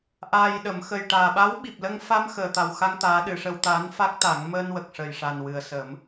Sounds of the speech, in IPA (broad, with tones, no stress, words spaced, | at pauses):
ʔaː˨˩jɗə˨˩˨m xə˨˩jʈaː˨˩ɓa˧˥w ɓi˨˩p̚lə˧ŋfa˧m xəː˨˩t̪a˨˩wxa˧ŋ t̪aː˧˥ ɗɨ˨˩˨ʂə˧wt̪aː˧˥n fa˦˥k̚t̪a˨˩˦ŋ məː˧nwə˨˩k̚ʂə˨˩jʂa˨˩n wɨ˨˩ə̯sə˨˩˦m